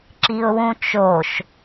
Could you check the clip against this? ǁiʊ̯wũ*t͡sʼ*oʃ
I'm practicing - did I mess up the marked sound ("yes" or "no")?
yes